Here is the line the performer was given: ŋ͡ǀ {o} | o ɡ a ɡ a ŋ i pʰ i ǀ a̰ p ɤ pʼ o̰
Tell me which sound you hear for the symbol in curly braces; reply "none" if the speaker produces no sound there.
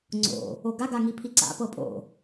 o̰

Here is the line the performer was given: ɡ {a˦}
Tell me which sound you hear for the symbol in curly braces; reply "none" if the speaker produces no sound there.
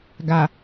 a˨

